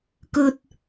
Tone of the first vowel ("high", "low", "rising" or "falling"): low